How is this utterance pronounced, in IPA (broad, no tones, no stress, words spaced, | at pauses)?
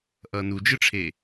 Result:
ʔʌːnud͡ʒɯʈ͡ʂʰeː